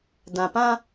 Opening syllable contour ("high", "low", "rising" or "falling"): low